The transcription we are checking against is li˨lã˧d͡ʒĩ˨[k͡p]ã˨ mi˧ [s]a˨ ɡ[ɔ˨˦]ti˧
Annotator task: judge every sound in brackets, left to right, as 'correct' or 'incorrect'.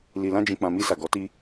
correct, correct, correct

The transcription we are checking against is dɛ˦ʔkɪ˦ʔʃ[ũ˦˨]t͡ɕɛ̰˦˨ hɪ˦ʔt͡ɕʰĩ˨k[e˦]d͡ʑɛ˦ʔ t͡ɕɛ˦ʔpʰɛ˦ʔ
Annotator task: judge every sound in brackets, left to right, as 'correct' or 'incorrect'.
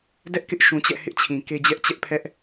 incorrect: ũ˨, correct

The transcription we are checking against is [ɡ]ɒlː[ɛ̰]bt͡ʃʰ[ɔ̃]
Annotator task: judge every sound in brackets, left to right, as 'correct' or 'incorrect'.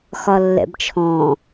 incorrect: x, correct, correct

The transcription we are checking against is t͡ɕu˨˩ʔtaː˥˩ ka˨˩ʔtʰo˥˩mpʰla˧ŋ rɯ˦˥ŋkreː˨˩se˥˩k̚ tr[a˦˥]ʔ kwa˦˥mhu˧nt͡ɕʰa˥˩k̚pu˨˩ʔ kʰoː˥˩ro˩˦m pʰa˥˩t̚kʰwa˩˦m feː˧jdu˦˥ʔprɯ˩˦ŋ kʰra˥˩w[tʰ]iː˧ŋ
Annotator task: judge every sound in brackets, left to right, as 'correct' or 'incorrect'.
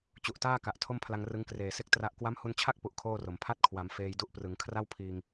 correct, incorrect: pʰ

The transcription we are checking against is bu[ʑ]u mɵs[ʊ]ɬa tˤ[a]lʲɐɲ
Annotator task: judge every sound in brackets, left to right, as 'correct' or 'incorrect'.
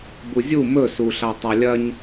incorrect: zʲ, incorrect: u, correct

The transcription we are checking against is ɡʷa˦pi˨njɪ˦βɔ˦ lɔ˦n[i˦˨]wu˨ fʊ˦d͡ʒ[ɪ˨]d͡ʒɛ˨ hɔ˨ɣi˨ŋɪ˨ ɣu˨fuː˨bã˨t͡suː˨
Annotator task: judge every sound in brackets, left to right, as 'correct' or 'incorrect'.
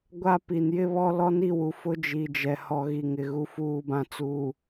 correct, incorrect: i˨

